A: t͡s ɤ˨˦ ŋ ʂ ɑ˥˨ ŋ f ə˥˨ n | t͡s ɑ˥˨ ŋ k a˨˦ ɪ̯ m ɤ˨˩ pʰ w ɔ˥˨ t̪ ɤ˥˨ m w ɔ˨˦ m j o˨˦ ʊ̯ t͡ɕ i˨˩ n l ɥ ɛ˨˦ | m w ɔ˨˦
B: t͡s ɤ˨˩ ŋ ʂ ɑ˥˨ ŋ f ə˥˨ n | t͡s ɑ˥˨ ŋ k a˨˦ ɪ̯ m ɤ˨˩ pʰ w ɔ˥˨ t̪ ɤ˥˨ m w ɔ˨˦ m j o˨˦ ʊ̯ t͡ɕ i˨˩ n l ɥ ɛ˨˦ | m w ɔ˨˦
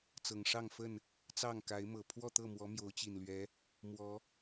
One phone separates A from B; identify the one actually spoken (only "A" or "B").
B